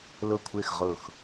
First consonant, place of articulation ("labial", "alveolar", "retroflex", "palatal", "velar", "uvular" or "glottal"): alveolar